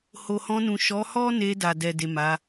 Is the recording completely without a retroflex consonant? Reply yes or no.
yes